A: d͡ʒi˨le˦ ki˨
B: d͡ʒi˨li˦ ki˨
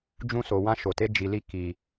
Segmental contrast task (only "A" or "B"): B